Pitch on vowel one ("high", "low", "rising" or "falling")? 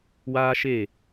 high